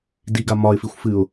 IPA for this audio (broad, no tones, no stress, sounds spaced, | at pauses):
d i ɡ a m ɒ ɪ̯ f i xʷ f ɨ ʊ̯